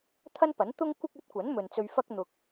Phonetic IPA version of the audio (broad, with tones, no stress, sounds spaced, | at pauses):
t̪ʰ ɐ˥ n p ɐ˨˥ n t̪ ʊ˥ ŋ kʷ ɪ˥ k̚ ɵ˨˥ t̚ kʷ ɐ˨˥ n m ɵ˨ n t͡s ɵ˧ ɥ f ɐ˥ k̚ n̪ ʊ˧ k̚